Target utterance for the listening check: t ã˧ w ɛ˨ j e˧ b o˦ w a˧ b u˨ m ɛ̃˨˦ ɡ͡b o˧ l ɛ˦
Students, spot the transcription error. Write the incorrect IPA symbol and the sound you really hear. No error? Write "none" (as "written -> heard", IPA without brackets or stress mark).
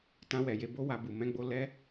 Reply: none